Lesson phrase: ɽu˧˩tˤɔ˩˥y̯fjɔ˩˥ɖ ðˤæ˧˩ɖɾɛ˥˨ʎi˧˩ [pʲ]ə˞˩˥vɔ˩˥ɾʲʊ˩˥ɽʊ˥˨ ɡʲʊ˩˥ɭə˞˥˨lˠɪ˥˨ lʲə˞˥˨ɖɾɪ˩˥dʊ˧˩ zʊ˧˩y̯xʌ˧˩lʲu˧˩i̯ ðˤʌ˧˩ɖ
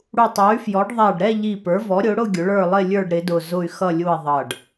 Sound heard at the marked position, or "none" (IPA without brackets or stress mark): p